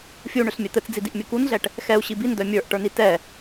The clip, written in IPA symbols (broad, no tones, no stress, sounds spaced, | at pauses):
fʲ u ɳ ʏ ɬ mʲ ɛ t̪ ɘ t͡s d͡z i d i ʔ mʲ ɘ k u n ɮ ɛ ʈ | x ɛ u̯ ɕ i b i n d œ mʲ ə˞ ʔ ʈ ə˞ n i t ɛ